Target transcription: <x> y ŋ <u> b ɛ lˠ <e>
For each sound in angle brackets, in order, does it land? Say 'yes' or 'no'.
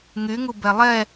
no, yes, no

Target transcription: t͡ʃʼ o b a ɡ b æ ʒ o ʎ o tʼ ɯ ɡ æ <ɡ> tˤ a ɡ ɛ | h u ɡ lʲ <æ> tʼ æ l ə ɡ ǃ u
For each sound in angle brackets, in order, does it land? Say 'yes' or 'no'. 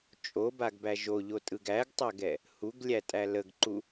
yes, yes

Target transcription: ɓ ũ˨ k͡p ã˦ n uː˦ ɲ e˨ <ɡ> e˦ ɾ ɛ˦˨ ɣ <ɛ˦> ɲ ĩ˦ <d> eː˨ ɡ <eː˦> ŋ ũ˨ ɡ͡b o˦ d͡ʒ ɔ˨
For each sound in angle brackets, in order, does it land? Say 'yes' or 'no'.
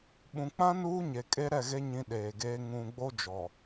no, no, no, yes

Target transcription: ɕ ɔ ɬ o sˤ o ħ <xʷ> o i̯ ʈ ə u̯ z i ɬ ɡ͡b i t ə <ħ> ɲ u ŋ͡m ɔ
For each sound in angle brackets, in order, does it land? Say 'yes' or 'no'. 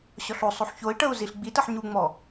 no, yes

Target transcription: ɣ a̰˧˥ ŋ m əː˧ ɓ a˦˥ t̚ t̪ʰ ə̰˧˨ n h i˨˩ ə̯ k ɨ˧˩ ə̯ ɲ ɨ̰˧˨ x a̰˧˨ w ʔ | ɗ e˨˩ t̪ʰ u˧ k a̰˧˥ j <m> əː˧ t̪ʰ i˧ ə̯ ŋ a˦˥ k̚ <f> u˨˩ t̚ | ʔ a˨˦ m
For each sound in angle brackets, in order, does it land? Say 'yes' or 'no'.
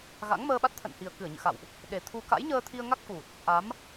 no, yes

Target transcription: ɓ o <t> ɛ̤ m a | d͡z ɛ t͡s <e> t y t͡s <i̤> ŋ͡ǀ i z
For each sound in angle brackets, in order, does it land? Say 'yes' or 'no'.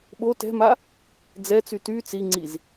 yes, no, no

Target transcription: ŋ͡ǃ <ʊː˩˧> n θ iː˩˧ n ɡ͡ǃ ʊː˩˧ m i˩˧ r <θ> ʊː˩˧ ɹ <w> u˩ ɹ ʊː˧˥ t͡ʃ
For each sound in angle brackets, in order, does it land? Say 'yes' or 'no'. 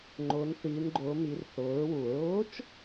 yes, yes, yes

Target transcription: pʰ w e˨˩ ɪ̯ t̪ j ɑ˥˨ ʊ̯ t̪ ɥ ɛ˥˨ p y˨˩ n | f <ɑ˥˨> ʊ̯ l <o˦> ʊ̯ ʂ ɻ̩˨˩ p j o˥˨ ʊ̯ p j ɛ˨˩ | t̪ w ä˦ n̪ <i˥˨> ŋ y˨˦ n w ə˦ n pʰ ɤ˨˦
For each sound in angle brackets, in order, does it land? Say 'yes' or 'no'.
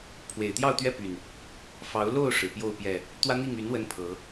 no, no, yes

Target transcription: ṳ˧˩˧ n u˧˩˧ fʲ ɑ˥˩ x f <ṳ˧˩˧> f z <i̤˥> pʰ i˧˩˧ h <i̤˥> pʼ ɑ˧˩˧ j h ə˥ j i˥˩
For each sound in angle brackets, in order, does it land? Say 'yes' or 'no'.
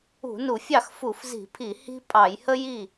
no, no, yes

